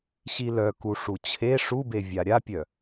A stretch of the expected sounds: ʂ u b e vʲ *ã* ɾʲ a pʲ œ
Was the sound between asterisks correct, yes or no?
no